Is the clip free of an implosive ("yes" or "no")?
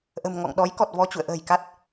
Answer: no